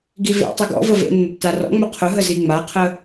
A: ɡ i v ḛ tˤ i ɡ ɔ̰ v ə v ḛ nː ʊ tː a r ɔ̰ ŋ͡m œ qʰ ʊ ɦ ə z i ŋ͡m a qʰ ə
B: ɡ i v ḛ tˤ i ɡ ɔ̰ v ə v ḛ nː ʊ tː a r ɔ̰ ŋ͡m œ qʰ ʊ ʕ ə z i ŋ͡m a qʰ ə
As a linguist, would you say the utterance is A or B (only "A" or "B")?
A